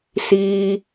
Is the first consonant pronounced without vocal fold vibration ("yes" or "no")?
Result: yes